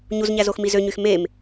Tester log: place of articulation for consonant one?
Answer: palatal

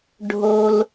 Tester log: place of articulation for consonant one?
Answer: retroflex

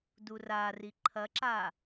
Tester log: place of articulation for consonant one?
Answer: alveolar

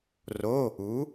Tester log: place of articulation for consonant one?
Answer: alveolar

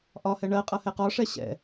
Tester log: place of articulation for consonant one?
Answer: glottal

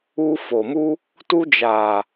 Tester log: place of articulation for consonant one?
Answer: labial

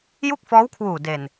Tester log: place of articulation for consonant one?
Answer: palatal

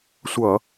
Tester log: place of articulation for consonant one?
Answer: alveolar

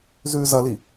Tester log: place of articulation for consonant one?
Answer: alveolar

